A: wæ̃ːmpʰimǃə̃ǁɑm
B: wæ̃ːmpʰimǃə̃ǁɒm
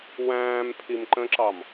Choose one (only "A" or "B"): A